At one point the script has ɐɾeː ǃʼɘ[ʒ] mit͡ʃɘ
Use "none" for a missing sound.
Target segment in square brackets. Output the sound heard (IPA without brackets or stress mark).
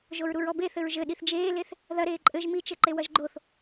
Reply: ʒ